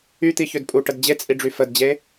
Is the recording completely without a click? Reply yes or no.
yes